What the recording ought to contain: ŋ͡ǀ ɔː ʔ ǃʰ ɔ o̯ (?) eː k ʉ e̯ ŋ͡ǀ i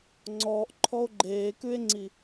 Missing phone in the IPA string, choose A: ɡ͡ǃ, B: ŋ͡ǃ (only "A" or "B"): A